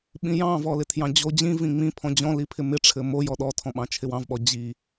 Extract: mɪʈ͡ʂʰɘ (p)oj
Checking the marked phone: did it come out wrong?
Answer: yes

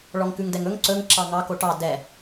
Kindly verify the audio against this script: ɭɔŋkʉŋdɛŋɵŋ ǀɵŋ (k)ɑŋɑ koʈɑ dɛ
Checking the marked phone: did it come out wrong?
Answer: yes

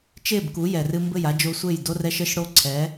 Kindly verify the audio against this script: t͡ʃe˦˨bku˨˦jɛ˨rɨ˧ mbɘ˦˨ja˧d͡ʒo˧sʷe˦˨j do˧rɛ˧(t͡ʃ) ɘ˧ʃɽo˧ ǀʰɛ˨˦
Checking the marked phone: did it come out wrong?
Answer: yes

